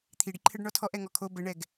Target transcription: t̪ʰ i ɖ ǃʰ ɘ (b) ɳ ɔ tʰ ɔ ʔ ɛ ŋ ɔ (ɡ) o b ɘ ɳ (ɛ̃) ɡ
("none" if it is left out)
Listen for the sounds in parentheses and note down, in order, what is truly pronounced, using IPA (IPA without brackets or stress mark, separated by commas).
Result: ɖ, kʰ, ɛ